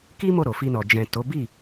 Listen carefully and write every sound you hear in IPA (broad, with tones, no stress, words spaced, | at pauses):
ki˦ mo˦˨ɾo˨fi˧nɔ˨ d͡ʒɛ̃˨ to˨˦bi˦˨